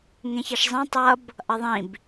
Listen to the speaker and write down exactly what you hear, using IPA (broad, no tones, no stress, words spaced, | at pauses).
ŋẽçʌʃzˤĩ tˤʌb | ʔʌðˤĩb